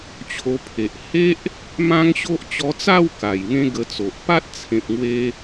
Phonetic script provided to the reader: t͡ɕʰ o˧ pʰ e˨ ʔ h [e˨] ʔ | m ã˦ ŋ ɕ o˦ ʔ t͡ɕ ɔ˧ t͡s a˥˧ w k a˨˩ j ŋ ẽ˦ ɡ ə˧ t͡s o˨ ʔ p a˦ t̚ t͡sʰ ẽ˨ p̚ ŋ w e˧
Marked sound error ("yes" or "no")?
yes